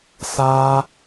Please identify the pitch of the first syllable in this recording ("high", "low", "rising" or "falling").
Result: high